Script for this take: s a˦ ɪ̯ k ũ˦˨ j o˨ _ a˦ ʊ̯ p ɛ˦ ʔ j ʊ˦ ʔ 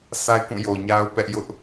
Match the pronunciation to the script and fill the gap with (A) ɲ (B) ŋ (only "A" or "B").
A